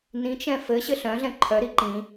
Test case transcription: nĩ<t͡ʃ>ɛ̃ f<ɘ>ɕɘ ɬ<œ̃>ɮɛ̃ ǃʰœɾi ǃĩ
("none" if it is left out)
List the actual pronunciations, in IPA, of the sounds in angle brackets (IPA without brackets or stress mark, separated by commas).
t͡ʃ, ɘ, œ̃